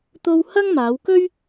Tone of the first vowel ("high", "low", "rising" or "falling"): high